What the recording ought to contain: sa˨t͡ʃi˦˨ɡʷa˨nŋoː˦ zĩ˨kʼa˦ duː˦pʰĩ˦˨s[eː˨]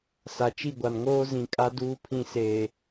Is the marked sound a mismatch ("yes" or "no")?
no